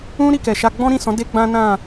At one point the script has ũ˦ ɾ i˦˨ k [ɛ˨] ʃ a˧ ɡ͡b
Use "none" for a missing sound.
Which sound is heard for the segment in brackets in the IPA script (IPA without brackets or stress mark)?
ɛ˨